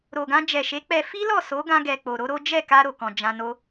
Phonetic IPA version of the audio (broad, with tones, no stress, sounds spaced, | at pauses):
ɾ o˨ ɡ ã˧ d͡ʒ ɛ˨ ʃ e˨˦ k͡p ɛ˧ f i˦ l ɔ˦˨ s o˨˦ ɡ ã˧ ɡ ɛ˨ k͡p o˨ ɾ o˨˦ ɾ o˦ d͡ʒ ɛ˦˨ k a˧ ɾ o˨ k ɔ̃˨ d͡ʒ ã˧ n o˦